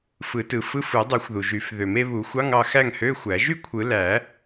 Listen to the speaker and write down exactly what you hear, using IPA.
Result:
f ɯ˨˩˦ t ɯ˨˩˦ f ɯ˧˥˧ f ɯ˨˩˦ dˤ u˨˩˦ xʷ ð u˩ ʒ y˨˩˦ f ð ø˨˩˦ m e˥ β u˨˩˦ xʷ ɑ˧˥˧ ŋ ɑ˥˨ x æ˥˨ ŋ h ø˧˥˧ xʷ æ˨˩˦ ʒ y˥ kʷʰ ɯ˨˩˦ l æ˨˩˦

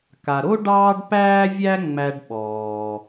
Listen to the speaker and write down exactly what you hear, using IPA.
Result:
k a˩ ɾ o˥ ɖ ɑː˥ ɖ p æː˥ vʲ æ˥ ŋ͡m æ˧ ɖ ɓ ɔː˩

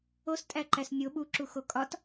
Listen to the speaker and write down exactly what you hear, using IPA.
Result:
o s tʼ æ ǃ æ s nʲ o ɓ u ǁ u x o kʼ ɒ t

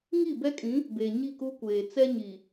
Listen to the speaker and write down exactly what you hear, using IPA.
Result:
ŋ i˦˨ b ɛ˦ kʼ ĩ˨˦ | b e˨ ɲ i˦˨ k u˦ kʷ eː˨ t͡s ɛ˦ ɲ i˨

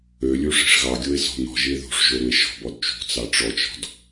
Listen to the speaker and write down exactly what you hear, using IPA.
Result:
ø lʲ u ʂ i̤ ʂ ɣ ɑ ɡʲ o e̯ s ɔ̤ n̪ ɔ̤ ʒ i e̯ ð ṳ ʂ ʒ o ɾ u e̯ ʃ ɔ̤ b ɔ d t͡ʃ ṳ t͡s ɑ ʈ͡ʂ ɔ t͡ʃ ɔ̤ d

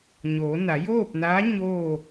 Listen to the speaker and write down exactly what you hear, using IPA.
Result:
ɲ oː˩˧ n a˩˧ j oː˥˨ p̚ n aː˧˥ ɲ oː˥˨

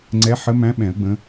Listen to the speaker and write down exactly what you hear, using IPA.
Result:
ŋ͡ǀ ɛ˨˦ ħ ə˨˦ m æ̃˨˦ ɓ ɛ̃˨˩˦ ə̯ ɡ͡b ə̃˨˦

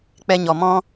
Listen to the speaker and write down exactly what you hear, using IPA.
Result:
k͡p ɛ˧ ɲ ɔ˨ m ɔ̃˦

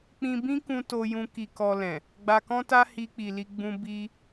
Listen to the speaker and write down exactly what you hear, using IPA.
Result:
k͡p ĩ˧ b ĩ˦ k ũ˧ t o˧ j ũ˧ k i˧ k ɔ˧ l ɛ̃˨ | ɡ͡b a˧ k ɔ̃˦ t a˦ h i˧ k͡p i˨ l i˧ ɡ͡b ũ˧ b i˧

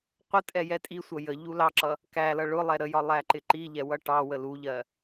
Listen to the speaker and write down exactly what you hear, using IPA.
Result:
qʷ ə tʼ ɛ j ɛ tʼ i sʷ ʌ j ə ʎ u l ɑ ǁ ʌ | k æ l ʌ ɭ ʊ lˠ ɛ ɾ ə j ɒ lˠ æ ǃ ɪ ǃ i ʎ ɛ w ʌ ʈ ɑ w ə l u ʎ ɜ

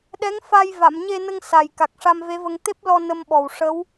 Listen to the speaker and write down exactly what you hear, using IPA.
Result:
ɗ ɛ˧˥ ŋ f a˧ j v a˨˩˨ m ɲ e˧ n ə˧ ŋ s a˨˩ j k a˨˩ k̚ ʂ a˧ m v e˧˥ v ə˧ ŋ t̪ e˦˥ p̚ l ɔ˧ n ə˧ m ɓ ɔ˨˩ w ʂ ə˧˥ w

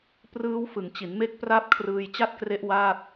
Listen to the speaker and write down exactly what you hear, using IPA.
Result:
p r ɯː˦˥ w f ɯ˩˦ ŋ t͡ɕ i˩˦ n m e˦˥ k̚ p r a˥˩ p̚ kʰ r ɯː˧ j t͡ɕ a˥˩ t̚ k r e˦˥ ʔ w aː˥˩ t̚

